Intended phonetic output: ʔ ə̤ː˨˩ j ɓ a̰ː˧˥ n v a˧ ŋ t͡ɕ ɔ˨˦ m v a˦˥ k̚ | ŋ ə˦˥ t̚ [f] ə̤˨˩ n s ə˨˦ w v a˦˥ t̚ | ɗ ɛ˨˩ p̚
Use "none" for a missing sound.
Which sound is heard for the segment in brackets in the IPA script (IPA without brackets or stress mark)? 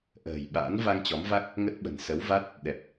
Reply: ɓ